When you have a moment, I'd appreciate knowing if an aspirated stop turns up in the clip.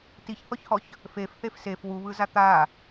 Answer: no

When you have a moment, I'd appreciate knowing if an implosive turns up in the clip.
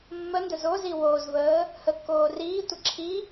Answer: no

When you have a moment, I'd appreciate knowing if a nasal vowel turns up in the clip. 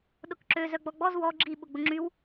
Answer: no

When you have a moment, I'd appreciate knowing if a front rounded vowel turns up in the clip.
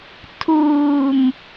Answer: no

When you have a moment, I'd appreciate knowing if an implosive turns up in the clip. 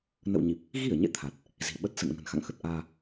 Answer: yes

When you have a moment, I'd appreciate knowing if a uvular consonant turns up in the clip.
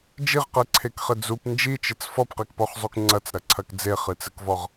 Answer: yes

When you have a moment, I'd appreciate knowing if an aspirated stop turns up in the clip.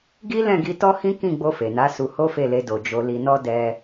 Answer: no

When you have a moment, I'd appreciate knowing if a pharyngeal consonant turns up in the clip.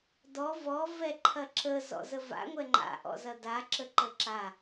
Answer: no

